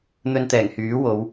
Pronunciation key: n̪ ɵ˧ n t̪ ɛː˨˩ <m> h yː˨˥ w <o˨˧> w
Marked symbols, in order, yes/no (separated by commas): no, yes